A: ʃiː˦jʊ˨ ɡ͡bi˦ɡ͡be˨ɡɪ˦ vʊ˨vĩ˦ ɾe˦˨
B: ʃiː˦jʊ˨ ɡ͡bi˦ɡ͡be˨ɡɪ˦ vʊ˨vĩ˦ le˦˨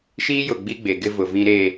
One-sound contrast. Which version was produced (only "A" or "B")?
A